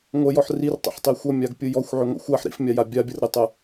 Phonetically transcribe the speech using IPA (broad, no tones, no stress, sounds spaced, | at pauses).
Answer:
ŋʷ ə j ɔ ħ r i r tˤ ə̰ ħ tˤ i xʷ ʌ mʲ a ɡ pʲ ɯ j ɔ xʷ ʕ ʏ ŋʷ ə̰ xʷ a ħ ɾ ḭ f mʲ a j a bʲ a bʲ ʌ r ɾ i tˤ ə